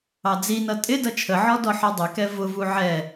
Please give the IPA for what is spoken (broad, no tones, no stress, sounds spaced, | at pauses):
ɑ d͡z i n ʌ tʼ ɪ d ʌ t͡ʃʰ ə ʕ ɔ d ɔ ħ ɔ dˤ ɪ k ɛ v ʊ v u ʕ ɛ